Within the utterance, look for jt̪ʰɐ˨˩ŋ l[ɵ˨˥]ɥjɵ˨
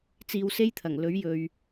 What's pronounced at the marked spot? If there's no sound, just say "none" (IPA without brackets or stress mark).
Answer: ɵ˨˥